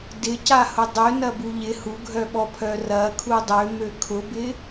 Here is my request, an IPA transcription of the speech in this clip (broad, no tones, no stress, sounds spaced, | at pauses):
d ɪ c a h ʊ dˤ ø n ɐ b u ʎ ɪ h u ɡʱ œ ɓ ɔ pʰ œ r ɐ kʰ u dˤ ø m ø kʰ ʊ b ɪ